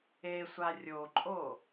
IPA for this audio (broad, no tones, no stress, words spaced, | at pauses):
esʷa rʲoǃʼo